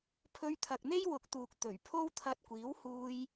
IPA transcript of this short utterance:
pʰ ɵ˧ ɥ t̪ʰ ɐ˨ k̚ n̪ e˥ j w ʊ˨ k̚ t̪ uː˨ k̚ t̪ ɵ˨˩ ɥ pʰ o˥ w t̪ʰ ɐ˧ t̚ kʷ iː˨˥ w h uː˧ j

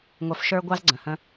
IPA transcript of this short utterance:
ŋʷ œ˧ f ʃ ə˞˦ ɡʷ ɑ˦ z ɡ͡ǀ ə̃˨ h ə̃˦

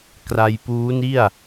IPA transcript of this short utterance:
k r a˧ j p uː˦˥ n i˥˩ a̯

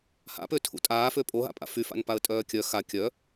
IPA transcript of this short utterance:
h a̰ p ø tʰ ṵ tʼ aː f ø pʼ o ɦ a̰ pʼ a̰ f y f a̰ n p a ə̯ tʼ œː kʲ œ x a kʲ œ

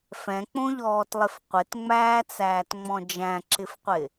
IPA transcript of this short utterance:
f ɛ̃ k͡p õ ʎ ɔː t lˠ ɪ f qʷ ɪ t ŋ͡m æː t͡s æː t ŋ͡m ɔ̃ d͡ʒ æ̃ ǁ ɪ f qʷ ɪ

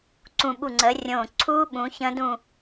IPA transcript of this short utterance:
ǀ ũ˧˩ ɓ u˧˩ ŋ͡ǀ əː˨˦ rʲ õː˧˩ ǀʰ uː˦˥ ɓ ũ˨˦ ç ə̃˦˥ d ũ˥˨

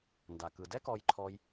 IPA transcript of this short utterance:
n d a˩ k ɯ˩ d ɛ˥ k ɔ˧ j ǃʰ ɔ˧ j

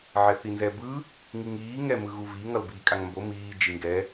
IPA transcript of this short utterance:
ʕ ɛ θ i n z ɛ b ɯ | ŋ i ŋ iː ŋ ɛ m ɯ ɣ u v i ŋ ʌ l b iː kʼ a ŋ m b o m iː d͡ʒ i ŋ ɡ ɛ

